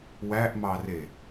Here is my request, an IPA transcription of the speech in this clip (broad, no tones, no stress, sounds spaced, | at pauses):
w æ ʔ m ɑ r e